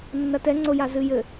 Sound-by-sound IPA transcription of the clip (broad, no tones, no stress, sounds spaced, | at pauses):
nː ɐ t ɛ ŋ͡ǀ o j a z ɨ j ɘ